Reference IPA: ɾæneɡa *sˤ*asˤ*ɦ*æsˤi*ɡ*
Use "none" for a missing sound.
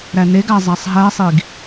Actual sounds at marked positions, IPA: zˤ, ɦ, ɡ

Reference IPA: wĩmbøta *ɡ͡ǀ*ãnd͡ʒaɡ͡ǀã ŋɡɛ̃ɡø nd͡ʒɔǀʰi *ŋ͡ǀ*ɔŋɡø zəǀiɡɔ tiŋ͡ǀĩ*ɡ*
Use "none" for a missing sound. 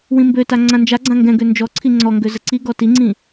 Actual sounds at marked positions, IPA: ŋ͡ǀ, ŋ͡ǀ, none

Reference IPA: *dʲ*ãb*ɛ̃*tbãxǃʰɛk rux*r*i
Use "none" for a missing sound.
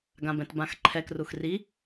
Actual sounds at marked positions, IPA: ɡ, ɛ̃, r

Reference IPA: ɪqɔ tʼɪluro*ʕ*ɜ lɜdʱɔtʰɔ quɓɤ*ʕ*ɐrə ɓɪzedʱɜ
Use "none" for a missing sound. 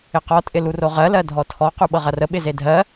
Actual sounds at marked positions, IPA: ʁ, ʁ

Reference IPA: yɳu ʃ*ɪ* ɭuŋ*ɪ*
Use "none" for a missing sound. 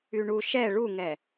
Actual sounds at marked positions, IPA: ɛ, ɛ

